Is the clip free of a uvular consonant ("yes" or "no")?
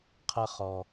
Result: no